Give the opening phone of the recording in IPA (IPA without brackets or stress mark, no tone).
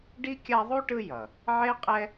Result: ɖ